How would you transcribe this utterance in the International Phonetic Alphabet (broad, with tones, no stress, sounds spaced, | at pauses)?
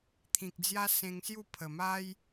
t̪ʰ ĩ˨ k̚ d͡z j a˦ s ẽ˧ ŋ s j u˥˧ pʰ ə˨˩ m a˦ j